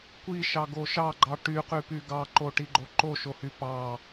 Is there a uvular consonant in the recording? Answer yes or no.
yes